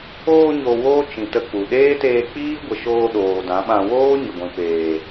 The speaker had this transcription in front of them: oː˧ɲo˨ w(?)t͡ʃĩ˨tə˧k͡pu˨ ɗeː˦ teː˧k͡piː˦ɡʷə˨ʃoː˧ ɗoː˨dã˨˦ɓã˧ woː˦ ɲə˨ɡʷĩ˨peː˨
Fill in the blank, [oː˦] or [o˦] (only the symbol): oː˦